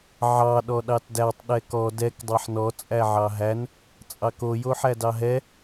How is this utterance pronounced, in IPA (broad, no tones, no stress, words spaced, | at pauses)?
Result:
ʕɑ ɗɔɗɑtdætˤ ɗɛkɔ dɛk dˤaħnɔ t͡sʼæʕɑɦæn | t͡sʼɑko joħædɑɦɛ